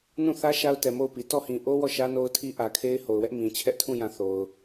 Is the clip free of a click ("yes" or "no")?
yes